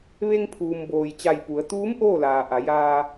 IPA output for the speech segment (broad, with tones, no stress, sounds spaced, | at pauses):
ʋ e˧ ŋ pʰ uː˩ m b oː˩ j t͡ɕ a˧˩ j p u˩˧ ə̯ t̪ uː˧˥ m ʔ oː˥˨ l aː˩ ʔ a˩˧ j aː˧